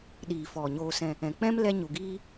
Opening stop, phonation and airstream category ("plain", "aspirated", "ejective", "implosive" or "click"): implosive